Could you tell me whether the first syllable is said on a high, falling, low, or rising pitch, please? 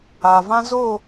low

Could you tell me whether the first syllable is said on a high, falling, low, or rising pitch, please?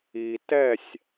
low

